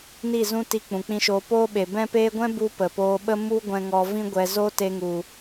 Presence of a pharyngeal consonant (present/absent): absent